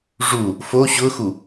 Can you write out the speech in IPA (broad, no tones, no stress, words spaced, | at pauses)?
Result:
ʐu | fo ɕʊxu